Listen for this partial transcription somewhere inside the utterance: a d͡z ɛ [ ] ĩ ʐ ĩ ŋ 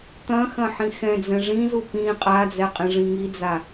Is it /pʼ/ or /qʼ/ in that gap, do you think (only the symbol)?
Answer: qʼ